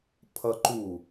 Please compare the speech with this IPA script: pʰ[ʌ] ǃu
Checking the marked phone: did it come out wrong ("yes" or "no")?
no